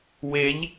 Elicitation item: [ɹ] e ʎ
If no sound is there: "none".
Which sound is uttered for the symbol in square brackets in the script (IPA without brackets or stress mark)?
w